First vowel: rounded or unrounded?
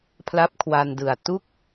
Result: unrounded